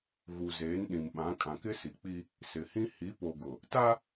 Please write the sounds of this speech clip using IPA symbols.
ɣ u˨ z eː˨˦ n ɗ ĩ˨ m ɓ ã˨˦ kʼ ã˨ k ɪ˦ s i˨ k͡p i˦ | s ɪ˨ h ĩ˦ h i˨˦ p o˨ ɡ ʊ˨ | t a˦

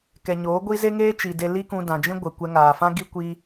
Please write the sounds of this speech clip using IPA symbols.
k ɛ˨ ɲ oː˨˦ ɡʷ i˦ z e˦ ŋ eː˦ t͡ʃ i˨ d e˧ l i˦ k ũ˧ d ã˨ d͡ʒ ĩ˦ ɡʷ ɛ˨ kʷ ɛ˧ ŋ aː˨ f ã˦ ɡ i˦ kʷ i˦

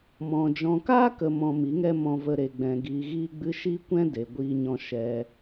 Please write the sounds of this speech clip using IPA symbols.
m ɔ̃˨ d͡ʒ ɔ̃˨ k aː˦ k ə˨ m ɔ̃˧ m i˨˦ ŋ ɛ˦ m ɔ̃˧ v ə˧ ɾ e˨ ɡ͡b ɛ̃˨ ɡ iː˨ ɣ iː˧ ɡ͡b ɨ˧ ʃ i˦ kʷ ɛ̃˦ d e˨ ɡʷ iː˦ ɲ ɔ̃˦ ʃ ɛ˧

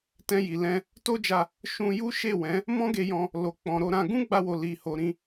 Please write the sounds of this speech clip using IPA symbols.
t ɛ̃˧ j i˨ l ɛ̃˧ | t o˦ d͡ʒ a˧ | ʃ ũ˧ j u˦ ʃ e˦˨ w ɛ̃˨˦ | m ɔ̃˦ ɡ e˧ j ɔ̃˧ | l o˨ k͡p ɔ̃˨ ɾ o˧ ɾ ã˧ ɡ ũ˦ ɡ͡b a˧ w o˨ l i˧ h o˧ ɾ ĩ˦

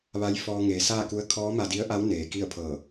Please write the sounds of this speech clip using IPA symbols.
ʋ a˧˥ j f ɔː˧ ŋ eː˩˧ s aː˥˨ k u˧˥ ə̯ kʰ ɔː˧˥ m a˧ d i˧˥ ə̯ ʔ a˧˥ w n eː˩ k i˥˨ ə̯ pʰ ɤː˧˩

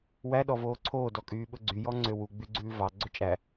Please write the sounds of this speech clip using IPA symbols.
w æ ɗ ɔ v oː ǀʰ oː d ɔ kʼ yː ɓ ɵ ɡ͡ǀ y j ɔ ŋ͡ǀ ø w u ɡ͡b y ɡ͡ǀ ʉː v ɑ ɡ͡ǀ ɵ t͡ʃʼ æ

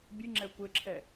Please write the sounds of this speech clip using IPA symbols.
bʲ ɨ ŋ͡ǁ ɛ kʷ ɘ ǁʰ ɛ

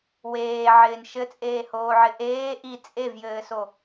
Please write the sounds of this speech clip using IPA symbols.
w eː ʕ ɪː n ʃ ɘ t͡sʼ eː h oː ʕ ɪ ʔ eː ʔ i t͡sʼ e v j ɘː s o

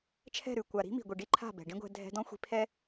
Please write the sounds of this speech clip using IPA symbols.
t͡ʃʰ ɛ̤˦˨ ɾ ʉ˦˨ kʷ a˨ ɾ i̤˦ m i̤˨ ɡʷ i˨ ɖ i˦ ǃʰ a̤˦˨ b ɛ̤˨ ɖ ĩ˦ ɡʷ ɛ̤˧ dʱ ɛ̤˧ d ɔ̃˦ xʷ i̤˧ pʰ ɛ˦

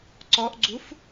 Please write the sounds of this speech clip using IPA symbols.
ǀ ɔ ʔ ɡ͡ǀ u f

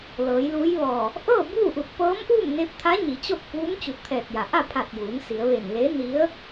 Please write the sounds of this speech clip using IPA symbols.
l ɤː˩˧ j l uː˧˥ j ʋ ɔː˧˩ | ʔ ɤː˥˨ b uː˥˨ ʔ u˧˩ t̚ p ɤː˧˥ m ʔ uː˥˨ m n e˧ p̚ t̪ʰ a˧˥ ɲ i˩˧ t͡ɕ o˥˨ k̚ p uː˧˥ m t͡ɕ u˧˩ t̚ t̪ʰ ɛː˧˩ t̚ j a˩ ʔ a˥˨ pʰ a˧˩ t̚ j uː˩˧ n s i˩˧ ə̯ ʋ e˧˩ n l e˧˥ n i˧˥ ə̯

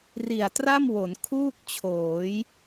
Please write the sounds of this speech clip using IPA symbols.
r i˨˩ a̯ t r a˥˩ m w o˩˦ n kʰ uː˥˩ k̚ t͡ɕʰ oː˩˦ j

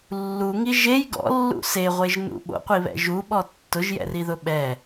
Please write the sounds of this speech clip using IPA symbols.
lː u ŋ i ʒ e j ɡ ɔ̰ lː ṵ s e ʁʷ e ʒ n ṵ ɓ o̰ qʷ i β ɛ̰ ʒ u ɓ ɔ tː ʊ ʒ j ɛ̰ r i ð ʊ ɓ ɛ

